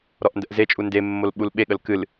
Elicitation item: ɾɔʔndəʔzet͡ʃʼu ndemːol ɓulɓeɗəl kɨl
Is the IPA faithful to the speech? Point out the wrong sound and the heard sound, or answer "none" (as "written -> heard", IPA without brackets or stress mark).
ɗ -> ɠ